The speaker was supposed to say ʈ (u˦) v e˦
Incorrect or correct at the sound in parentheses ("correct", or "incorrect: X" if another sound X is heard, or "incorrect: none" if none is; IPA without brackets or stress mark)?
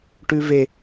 incorrect: ʉ˦